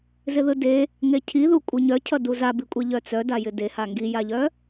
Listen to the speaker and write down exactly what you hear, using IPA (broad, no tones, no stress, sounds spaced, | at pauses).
z ɪ ð ɯ d e | ŋ e cʰ i ð u kʷʼ ɯ ɲ œ cʰ ʌ d u z a b i kʷʼ e ʎ œ t͡s œ d a j ɪ d e h a ŋ ɡ i j a ʎ œ